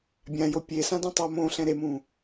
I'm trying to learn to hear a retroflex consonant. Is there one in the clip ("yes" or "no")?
no